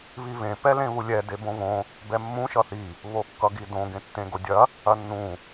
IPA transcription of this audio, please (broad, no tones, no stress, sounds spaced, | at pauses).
β i β ẽ p ɛ l ẽ β u lʲ ɛ d e b õ β õ | b ɛ mː ũ ʃ ʌ θ i | β o kː ʌ ɡ i d õ ɡ ẽ tː ẽ ɡ o dʲ ɐ | ɐ nː ũ